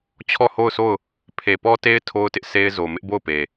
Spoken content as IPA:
t͡ɕʰ ɔ˦˨ h o˦˨ ʊ̯ s o˦˨ ʊ̯ | pʰ e˨ p ɔ˦ t e˦ ɪ̯ tʰ o˦ ʊ̯ t ɪ˦ ʔ s e˦ ɪ̯ z o˨ m ɪ˦ ʔ b o˦˨ ʊ̯ p e˨

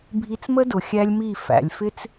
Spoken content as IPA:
bʱ i˧ t͡s m ə˦ d ʊ˨ xʲ æ˦ lʲ m i˦˨ f æ̰˨ lʲ f ɪ˦ t͡s

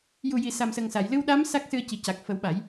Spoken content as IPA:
j u˨˩ j i˨˩˨ s a˨˩ m s ə˨˩ ŋ s a˨˩˨ j l ɨ˧ w ɗ a˧˥ m s a˦˥ k̚ s ɨ˧ ə̯ c i˨˩ c a˨˩ k̚ f ə˨˩˦ w ɓ a˨˩˦ j

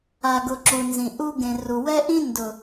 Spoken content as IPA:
a˨ ɡ ʊ˨ ǁ u˨ n z ĩ˨ ʔ u˦ ɡ ẽ˨ r u˨ w ɛ˦ ʔ ĩ˦ n d ʊ˨

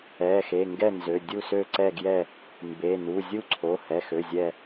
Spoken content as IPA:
ɛ˩˧˩ x e˩˧˩ ŋ ɡ ɛ˥˨ n z ø˩˧˩ dʲ u˥˨ s ø˥˨ ǀ ɛ˥˨ ɡ j ɛ˥˨ | m b e˩˧˩ n u˩˧˩ zʲ u˥˨ ǀʰ o˩˧˩ h ɛ˩˧˩ x ø˩˧˩ zʲ ɛ˥˨

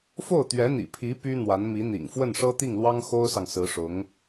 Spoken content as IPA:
f o˥˩ ʊ̯ t̪ ɥ ɛ˧˥ n̪ ḭ˨˩ pʰ i˧˥ p y˥ n̪ w a˧˥ n m i˧˥ n̪ ḭ˨˩ ŋ f w ə˥˩ n ʂ ɤ˥ t̪ i˥˩ ŋ l w ɑ˥ ŋ x o˥ ʊ̯ s ɑ˨ ŋ s ɹ̩˧˥ ʂ ʊ˧˥ ŋ

